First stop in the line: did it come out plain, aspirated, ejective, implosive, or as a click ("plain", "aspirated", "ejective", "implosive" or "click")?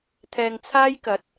aspirated